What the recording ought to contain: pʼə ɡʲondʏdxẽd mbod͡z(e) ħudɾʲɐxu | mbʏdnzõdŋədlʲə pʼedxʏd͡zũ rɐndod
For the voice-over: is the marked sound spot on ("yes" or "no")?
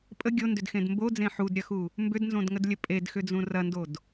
no